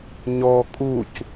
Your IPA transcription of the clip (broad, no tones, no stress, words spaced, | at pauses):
ɲɔ kʼuc